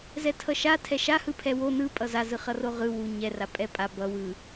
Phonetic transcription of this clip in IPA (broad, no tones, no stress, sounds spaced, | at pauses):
z ɛ tʰ ʌ ʃ a tʰ ɛ ʃ a h ɯ pʰ ɛ w o n ɯ pʼ ʌ z a z ɯ χ ʌ r o ʁ ɯ w u ɲ ɛ r a pʼ ɛ pʼ a b ʌ w ɯ